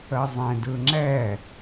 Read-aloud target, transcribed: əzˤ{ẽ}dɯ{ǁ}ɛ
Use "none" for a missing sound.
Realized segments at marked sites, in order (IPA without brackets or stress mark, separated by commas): ẽ, ŋ͡ǁ